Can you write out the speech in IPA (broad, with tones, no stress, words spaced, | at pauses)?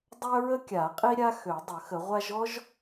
dˤœ˥ɹə˥kʲa˨˩˦ qʼi˥ɾʲa˥ xø˨˩˦dˤə˨˩˦xə˨˩˦ʁʷa˥ʒ ɔ˥ʒ